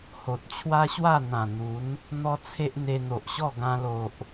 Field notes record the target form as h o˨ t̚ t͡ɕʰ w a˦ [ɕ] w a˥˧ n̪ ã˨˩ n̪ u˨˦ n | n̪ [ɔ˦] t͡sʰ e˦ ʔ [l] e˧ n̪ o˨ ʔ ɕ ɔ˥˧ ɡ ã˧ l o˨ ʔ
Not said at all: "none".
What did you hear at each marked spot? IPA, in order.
ɕ, ɔ˦, n̪

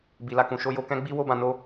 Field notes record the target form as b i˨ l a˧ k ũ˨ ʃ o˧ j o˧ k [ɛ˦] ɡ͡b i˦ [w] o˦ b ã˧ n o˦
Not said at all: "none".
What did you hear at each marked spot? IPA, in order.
ɛ̃˦, w

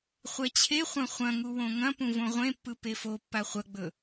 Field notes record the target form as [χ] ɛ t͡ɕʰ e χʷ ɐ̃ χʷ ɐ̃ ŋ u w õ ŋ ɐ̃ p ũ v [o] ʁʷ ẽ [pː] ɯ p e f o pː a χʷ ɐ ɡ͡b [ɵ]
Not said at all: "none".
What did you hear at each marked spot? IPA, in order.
χʷ, õ, pː, ɵ

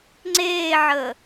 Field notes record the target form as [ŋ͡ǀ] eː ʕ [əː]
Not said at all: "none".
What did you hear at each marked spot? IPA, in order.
ŋ͡ǀ, əː

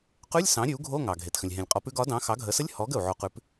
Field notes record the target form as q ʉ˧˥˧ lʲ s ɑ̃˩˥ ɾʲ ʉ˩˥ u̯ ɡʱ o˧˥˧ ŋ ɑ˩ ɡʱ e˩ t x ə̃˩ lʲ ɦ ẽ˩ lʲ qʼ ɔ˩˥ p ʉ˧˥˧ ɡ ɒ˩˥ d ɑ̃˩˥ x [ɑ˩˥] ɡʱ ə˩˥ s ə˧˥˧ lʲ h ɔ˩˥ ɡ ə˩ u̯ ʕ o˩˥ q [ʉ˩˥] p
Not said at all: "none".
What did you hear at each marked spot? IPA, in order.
ɑ˩˥, ʉ˩˥

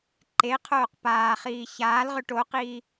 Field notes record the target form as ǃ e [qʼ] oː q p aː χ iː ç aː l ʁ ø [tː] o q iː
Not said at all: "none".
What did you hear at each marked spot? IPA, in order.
qʰ, ʈ

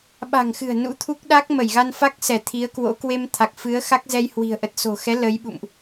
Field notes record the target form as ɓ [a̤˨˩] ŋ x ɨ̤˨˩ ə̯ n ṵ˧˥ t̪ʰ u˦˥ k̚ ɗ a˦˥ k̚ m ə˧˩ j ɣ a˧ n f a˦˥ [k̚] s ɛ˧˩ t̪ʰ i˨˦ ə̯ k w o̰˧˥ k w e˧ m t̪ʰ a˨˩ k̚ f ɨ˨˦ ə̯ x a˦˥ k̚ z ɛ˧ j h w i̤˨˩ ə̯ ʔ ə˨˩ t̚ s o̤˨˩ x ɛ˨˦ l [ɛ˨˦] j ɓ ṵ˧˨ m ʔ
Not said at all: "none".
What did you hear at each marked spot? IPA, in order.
a̤˨˩, k̚, ə˨˦

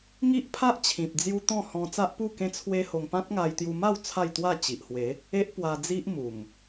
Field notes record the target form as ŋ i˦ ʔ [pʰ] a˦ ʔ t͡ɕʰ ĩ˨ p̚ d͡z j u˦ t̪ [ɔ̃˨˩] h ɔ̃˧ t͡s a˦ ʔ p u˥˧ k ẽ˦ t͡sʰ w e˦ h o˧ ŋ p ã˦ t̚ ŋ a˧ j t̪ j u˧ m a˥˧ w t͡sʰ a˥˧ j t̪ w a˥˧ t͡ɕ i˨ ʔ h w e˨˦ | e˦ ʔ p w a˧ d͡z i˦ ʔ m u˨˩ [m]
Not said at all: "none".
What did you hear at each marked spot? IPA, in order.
pʰ, ɔ̃˥˧, m

